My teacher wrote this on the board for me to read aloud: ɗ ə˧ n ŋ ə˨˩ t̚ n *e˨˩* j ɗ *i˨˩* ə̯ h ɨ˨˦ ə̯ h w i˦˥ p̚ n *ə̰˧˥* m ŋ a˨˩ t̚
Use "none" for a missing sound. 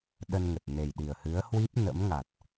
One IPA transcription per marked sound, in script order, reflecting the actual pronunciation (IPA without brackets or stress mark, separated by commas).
e˨˩, i˨˩, ə̰˧˥